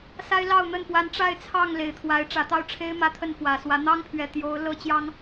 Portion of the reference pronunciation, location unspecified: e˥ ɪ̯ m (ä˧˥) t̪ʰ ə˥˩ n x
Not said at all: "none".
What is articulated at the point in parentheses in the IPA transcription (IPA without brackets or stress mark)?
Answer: ä˥˧